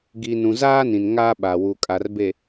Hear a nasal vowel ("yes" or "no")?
yes